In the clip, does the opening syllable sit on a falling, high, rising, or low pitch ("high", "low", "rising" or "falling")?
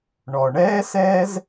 low